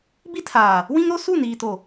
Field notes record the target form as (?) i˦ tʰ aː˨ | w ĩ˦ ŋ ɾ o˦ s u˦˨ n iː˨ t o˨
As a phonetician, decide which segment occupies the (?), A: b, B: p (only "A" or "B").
A